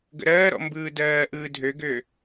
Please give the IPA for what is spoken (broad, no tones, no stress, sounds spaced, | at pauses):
ɡ ə̰ ɾ ɜː ɾ ɔ̰ m b ɯː d ɜː ʔ ɯː dʱ ø ɡ ø